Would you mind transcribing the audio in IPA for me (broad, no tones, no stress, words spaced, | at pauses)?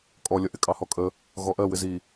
kʼɔlʲʌ ʔɪkʼɑhɔkʼə | ɣɔʔɜ wɪzi